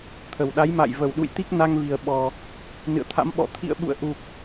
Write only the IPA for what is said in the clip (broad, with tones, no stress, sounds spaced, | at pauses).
t̪ʰ ə˨˩ w ɗ a˨˦ j m a̰˧˨ j v ə˧˩ w ɗ ṵ˧˨ j t̪ i˦˥ k̚ n a˧ ŋ v i˨˩ ə̯ ɓ ɔ˨˩ | n ɨ̰˧˨ ə̯ t̪ʰ a̰˧˥ m ɓ ɔ̰˧˨ t̪ʰ ḭ˧˨ ə̯ ɓ ṵ˧˨ ə̯ ʔ u˨˩ k̚